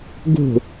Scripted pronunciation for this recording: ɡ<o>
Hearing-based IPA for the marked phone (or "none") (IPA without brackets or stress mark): o̤